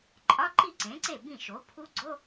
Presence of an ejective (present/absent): present